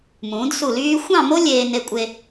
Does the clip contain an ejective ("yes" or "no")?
yes